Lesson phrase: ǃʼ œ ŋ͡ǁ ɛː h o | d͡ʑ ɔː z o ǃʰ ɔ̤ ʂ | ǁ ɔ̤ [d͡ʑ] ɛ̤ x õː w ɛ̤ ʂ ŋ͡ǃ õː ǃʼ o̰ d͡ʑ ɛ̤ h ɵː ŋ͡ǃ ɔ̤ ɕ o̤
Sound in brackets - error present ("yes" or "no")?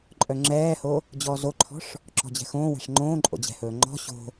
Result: no